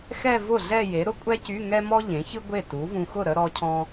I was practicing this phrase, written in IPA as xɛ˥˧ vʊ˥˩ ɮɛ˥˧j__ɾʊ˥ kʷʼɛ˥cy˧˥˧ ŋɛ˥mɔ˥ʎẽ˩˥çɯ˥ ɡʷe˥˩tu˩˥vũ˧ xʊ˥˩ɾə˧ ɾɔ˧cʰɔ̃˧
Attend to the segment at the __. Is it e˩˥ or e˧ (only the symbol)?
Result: e˩˥